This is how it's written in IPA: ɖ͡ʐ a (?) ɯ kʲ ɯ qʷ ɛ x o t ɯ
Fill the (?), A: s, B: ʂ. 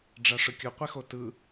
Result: B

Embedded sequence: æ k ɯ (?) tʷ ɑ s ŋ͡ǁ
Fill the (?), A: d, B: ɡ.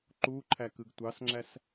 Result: B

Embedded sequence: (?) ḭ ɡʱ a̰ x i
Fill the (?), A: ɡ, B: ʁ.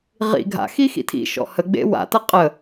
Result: B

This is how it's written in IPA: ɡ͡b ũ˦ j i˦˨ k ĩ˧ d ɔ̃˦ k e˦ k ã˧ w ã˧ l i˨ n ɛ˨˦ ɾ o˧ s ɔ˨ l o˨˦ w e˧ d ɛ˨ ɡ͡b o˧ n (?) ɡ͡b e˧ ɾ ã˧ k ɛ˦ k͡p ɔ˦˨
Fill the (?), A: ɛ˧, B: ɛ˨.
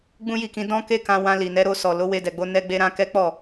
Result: A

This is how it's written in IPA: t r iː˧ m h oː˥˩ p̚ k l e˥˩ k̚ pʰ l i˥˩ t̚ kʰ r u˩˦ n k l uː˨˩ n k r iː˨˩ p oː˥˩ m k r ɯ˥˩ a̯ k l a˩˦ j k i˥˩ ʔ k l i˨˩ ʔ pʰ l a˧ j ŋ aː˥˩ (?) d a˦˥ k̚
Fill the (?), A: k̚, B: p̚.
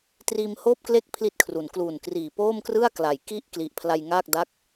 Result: A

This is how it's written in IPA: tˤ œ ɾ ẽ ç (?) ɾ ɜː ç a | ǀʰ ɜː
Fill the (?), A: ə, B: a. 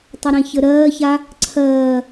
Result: A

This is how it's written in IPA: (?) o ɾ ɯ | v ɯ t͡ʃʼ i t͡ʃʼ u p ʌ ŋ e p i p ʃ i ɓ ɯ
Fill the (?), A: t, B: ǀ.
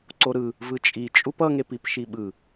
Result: B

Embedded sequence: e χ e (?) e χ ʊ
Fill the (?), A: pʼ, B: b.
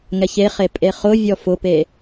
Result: A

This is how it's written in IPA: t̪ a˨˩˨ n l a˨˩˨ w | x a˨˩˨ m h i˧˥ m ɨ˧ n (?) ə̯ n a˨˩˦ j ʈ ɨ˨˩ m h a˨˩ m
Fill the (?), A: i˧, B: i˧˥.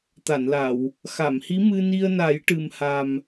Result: A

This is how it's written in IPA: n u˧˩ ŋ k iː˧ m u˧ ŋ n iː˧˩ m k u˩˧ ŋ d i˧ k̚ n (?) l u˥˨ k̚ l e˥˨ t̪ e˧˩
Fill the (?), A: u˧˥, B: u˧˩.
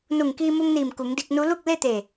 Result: A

